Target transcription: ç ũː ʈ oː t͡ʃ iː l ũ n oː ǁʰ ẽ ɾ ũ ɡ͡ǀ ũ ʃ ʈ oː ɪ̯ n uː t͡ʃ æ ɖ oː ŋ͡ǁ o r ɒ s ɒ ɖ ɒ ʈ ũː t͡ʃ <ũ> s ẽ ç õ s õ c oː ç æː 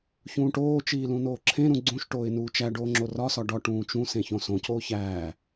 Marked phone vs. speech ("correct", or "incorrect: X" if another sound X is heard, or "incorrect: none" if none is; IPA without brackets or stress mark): correct